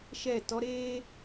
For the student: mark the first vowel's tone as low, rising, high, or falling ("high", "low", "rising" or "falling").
falling